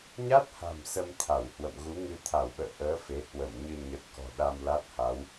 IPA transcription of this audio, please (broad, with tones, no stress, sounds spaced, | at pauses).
ɲ a˦˥ t̚ h a̤˨˩ m s ə˧ m t̪ʰ a˧˩ w h w ə̰˧˨ m ɣ u˨˦ ŋ ɨ˧ t̪ʰ a˧˩ w ɓ ə̰ː˧˨ ʔ əː˨˦ f e˨˦ h w ə˧˩ m ɲ ɨ˧ ɲ ə˨˩ t̚ k ɔ̤˨˩ ɗ a˧ m l a˦˥ t̚ h a˨˦ w